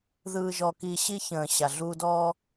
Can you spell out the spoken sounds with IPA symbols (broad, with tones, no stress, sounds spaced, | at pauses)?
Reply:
ð ɯː˧ ʒ ɔ˧ k i˧ ɕ i˧ ç ə̃ː˨ ɕ a˨ ɮ uː˧ d ɔː˦